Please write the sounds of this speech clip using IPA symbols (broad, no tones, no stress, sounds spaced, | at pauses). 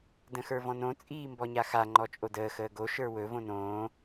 d ə̃ x ə˞ v ɔ̃ n õ t͡sʼ iː m b ɔ ɲ a x a ŋ͡ǃ ɔ t͡ʃʼ o d əː x əː ɡ o ʃ ə˞ w ɵ v õ n õː